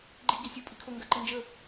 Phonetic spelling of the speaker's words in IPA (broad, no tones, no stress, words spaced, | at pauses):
ɡ͡ǃi ɟasʲu pʼikʰo ŋɡɜǃənd͡ʒə